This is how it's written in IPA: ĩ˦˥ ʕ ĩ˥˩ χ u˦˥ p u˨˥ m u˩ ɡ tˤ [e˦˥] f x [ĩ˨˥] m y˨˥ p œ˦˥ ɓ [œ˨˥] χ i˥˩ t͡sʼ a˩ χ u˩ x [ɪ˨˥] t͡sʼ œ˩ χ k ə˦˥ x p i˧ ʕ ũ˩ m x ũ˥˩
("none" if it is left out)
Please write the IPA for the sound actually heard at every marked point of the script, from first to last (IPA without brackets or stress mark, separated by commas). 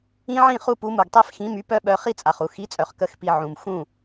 e˦˥, ĩ˨˥, œ˨˥, i˨˥